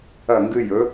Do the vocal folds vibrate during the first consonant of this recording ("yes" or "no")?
yes